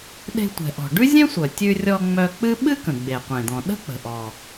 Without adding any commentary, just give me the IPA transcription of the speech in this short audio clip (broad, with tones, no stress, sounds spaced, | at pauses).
ɗ e̤˧ tʷ ɛ̤˩ ʔ ɔ̤˩ ɖ ʉ˥ zʲ ɛ̃˥ sʷ œ˩ tʲ ʉ˧ rʲ ɔ˧ ŋ͡m œ˧ k͡p ɨ˥ ɓ ɨ˥ k ə̃˩ ɡ͡b e˩ qʷ ẽ˩ d̪ ɔ̃˩ ɗ ə̤˥ k͡p ə̤˩ ʔ ɔ˩